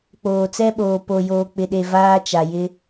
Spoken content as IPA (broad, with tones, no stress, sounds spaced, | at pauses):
k͡p oː˨ t͡s ɛ˦ ɓ oː˨ p o˨ j oː˨ k͡p ɪ˨ ɗ e˨ v aː˦ t͡ʃ a˨ j ɪ˦